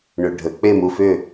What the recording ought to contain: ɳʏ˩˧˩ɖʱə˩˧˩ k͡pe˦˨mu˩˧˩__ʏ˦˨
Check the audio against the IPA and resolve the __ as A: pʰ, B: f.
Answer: B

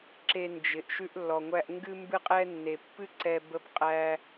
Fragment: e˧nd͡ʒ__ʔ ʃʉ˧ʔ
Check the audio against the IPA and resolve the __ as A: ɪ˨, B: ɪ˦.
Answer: A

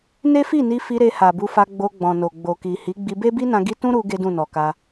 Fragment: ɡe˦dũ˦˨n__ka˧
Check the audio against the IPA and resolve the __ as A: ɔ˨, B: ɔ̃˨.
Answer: A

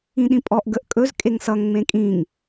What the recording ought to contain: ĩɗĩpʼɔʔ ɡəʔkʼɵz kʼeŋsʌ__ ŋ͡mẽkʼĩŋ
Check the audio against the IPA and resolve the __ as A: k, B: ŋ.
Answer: B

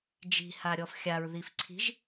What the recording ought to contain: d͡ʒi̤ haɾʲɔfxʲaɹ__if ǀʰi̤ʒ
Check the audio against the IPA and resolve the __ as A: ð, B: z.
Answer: A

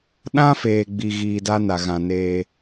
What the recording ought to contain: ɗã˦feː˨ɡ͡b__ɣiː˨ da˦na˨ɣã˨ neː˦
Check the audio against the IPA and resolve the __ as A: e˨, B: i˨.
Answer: B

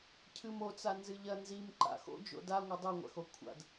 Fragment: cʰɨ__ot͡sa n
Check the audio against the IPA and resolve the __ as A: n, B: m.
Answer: B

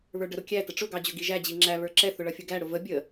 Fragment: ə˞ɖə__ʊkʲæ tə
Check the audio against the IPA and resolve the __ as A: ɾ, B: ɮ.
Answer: A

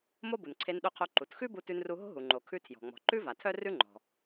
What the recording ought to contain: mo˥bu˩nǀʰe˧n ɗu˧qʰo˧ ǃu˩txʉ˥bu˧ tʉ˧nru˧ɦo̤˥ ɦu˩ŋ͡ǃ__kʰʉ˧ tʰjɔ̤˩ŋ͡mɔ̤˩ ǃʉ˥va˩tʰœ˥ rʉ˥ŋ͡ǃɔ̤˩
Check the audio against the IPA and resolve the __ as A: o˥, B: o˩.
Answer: B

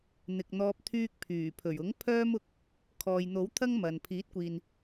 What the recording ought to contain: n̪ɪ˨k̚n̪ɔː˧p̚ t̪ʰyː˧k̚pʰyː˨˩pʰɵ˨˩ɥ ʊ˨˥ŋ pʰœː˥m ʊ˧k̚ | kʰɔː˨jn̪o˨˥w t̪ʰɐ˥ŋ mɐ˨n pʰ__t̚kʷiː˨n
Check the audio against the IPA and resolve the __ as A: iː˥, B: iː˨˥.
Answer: B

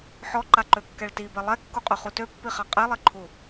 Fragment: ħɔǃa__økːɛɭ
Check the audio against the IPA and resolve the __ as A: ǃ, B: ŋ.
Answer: A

